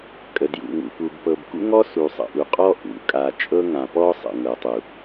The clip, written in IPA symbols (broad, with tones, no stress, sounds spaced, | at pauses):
kʼ ə˨ d j ṵ˨ ŋ ṵ˨ p u˨ b p ɤ˨ b k ṵ˦ ŋ ɔ˦ s u˨ sˤ ə̰˨ ʔ u˨ qʼ ɔ˦ ʔ ṵ˨ kʼ a˨ t͡ʃʼ ɤ˦ ŋ ã˨ p ɔ˦ sˤ ə̰˨ ŋ ɤ˨ tˤ u˨